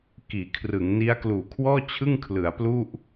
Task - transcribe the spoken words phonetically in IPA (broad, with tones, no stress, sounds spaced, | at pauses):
k iː˩˦ kʰ r ɯ˩˦ ŋ n i˦˥ a̯ k l uː˨˩ kʰ w ɔː˥˩ t͡ɕʰ ɯ˥˩ ŋ kʰ l ɯ˩˦ a̯ p l u˥˩ ʔ